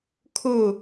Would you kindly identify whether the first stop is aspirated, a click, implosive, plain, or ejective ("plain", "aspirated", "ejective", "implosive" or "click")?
aspirated